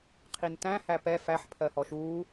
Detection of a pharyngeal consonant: present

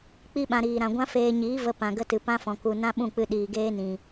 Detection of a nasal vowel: present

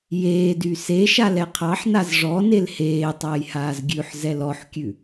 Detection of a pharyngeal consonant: present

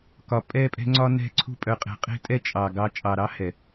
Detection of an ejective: present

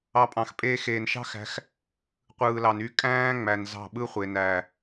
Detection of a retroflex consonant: absent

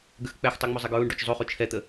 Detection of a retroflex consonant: present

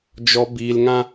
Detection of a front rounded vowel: absent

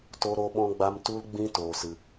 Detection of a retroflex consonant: absent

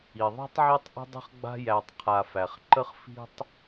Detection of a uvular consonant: present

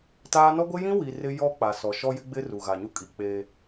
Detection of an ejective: present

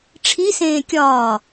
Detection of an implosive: absent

